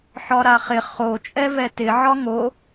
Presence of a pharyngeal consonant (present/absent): present